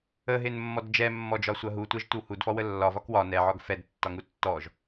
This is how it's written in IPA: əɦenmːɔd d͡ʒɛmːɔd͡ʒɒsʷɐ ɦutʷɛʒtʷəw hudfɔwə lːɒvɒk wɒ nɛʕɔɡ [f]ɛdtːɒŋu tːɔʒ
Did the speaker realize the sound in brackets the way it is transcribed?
yes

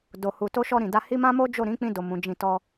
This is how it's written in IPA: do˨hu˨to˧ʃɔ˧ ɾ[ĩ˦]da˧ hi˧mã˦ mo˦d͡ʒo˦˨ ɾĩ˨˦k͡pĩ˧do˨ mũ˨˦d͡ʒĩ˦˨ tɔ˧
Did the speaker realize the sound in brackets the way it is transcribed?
no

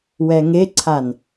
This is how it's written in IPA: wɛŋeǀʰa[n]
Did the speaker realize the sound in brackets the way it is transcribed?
yes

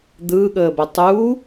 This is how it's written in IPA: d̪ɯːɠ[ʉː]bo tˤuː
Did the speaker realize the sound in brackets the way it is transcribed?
no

